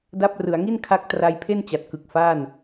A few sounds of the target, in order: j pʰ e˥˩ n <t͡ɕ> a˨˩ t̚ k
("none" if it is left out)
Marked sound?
t͡ɕ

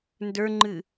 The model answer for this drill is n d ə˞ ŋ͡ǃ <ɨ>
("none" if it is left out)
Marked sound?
ɨ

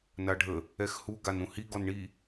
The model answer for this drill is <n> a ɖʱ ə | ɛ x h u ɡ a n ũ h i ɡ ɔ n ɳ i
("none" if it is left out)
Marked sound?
n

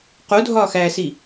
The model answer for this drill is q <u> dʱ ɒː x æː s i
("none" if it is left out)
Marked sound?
u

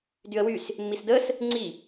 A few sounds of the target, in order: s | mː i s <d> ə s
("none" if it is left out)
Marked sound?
d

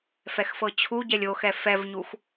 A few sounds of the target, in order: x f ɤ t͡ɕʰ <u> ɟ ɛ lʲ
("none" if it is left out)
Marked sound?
u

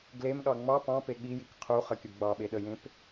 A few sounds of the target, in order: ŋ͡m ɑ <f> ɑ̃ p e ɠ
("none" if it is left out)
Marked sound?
p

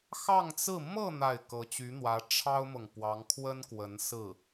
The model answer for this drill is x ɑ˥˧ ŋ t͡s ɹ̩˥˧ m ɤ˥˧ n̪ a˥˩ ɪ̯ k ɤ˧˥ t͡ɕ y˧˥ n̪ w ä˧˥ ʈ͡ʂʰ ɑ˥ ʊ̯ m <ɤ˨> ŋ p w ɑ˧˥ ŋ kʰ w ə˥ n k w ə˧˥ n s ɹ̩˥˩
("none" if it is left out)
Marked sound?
ɤ˨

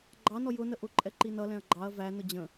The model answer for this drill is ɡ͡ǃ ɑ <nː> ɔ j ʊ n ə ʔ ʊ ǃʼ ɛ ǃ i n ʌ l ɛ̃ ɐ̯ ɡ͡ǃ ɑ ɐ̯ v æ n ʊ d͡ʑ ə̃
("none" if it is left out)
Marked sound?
n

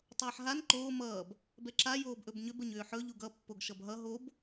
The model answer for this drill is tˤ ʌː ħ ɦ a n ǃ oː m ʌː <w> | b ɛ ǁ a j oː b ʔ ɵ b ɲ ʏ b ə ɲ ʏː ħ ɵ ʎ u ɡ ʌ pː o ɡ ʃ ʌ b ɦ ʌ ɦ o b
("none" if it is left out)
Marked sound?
b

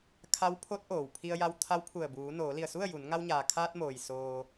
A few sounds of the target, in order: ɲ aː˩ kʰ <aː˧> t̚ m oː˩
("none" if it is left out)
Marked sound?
aː˧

